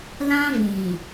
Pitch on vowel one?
high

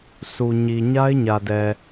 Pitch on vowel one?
low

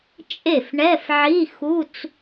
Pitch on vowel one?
falling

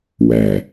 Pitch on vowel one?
low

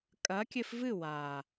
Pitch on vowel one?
rising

